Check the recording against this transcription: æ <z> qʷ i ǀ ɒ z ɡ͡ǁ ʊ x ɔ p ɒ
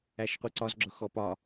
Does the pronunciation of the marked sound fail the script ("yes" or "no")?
yes